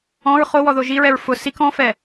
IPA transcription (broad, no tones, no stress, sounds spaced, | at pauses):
ɔ̃ ɹ χ o w ɔ ð o ʒ i ɹ ɛ ɹ f ʊ s i k ɔ̃ f ɛ